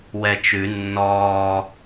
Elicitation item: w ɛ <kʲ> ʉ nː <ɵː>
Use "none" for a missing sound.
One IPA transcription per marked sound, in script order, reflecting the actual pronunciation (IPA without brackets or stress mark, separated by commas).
t͡ʃ, ɔː